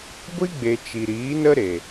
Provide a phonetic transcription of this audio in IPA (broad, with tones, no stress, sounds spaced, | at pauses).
ɡʷ i˦ ɡ͡b e˨ t͡ʃ i˨ ɾ iː˨˦ n ə˦ ɾ e˨